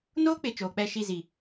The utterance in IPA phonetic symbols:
n oː˦ k͡p ɪ˨ t͡ʃ oː˨ k͡p ɛ˦˨ ʃ i˦˨ z i˨

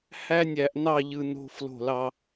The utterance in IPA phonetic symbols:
h æ˦ nʲ æ˨ ʔ n ɑ˦˨ ʎ ɯ˨ n o̤˦ f l o̤˦˨ l ɑ˦

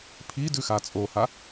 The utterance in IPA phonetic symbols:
pʰ i d ʉ x a t͡sʼ o h a

